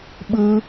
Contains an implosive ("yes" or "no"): yes